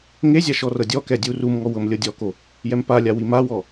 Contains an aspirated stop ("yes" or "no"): no